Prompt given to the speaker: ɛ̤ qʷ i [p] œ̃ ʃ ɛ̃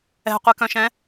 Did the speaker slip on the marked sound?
yes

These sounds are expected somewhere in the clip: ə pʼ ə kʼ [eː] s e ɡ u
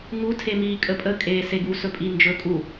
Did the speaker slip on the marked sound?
no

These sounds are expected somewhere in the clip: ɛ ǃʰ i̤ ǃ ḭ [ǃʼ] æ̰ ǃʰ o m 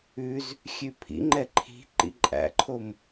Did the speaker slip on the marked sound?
no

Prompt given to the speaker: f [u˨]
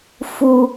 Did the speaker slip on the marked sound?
no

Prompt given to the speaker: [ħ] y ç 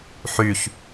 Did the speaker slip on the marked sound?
no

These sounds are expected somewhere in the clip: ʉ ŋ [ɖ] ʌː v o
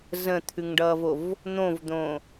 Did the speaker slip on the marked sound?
no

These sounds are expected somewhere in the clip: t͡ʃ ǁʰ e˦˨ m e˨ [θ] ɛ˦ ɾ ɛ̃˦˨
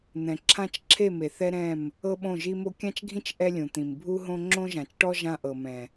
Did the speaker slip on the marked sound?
no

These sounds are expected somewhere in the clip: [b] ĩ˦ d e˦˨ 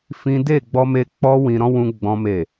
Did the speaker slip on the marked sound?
yes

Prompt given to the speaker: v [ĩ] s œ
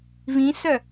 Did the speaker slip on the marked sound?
no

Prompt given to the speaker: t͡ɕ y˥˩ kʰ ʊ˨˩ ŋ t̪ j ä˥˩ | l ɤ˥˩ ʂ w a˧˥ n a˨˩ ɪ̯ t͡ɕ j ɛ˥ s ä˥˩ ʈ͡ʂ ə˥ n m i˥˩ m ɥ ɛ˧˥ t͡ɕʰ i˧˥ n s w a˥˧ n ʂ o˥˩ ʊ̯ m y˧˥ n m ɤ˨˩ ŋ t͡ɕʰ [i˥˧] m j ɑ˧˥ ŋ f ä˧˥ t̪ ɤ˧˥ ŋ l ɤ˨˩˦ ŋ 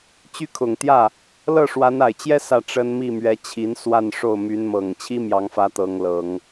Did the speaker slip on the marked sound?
yes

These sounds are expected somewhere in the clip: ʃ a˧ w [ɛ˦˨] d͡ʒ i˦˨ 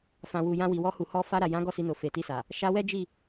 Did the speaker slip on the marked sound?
yes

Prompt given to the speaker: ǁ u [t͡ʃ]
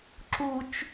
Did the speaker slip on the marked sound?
no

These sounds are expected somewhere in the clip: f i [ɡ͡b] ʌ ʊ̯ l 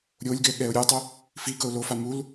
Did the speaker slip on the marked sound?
yes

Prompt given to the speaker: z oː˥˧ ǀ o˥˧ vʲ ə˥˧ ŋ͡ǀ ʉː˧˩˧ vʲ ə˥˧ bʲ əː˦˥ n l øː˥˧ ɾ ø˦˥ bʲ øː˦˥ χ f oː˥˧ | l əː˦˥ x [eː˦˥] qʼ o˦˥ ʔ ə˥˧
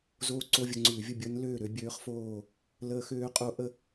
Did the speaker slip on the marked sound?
yes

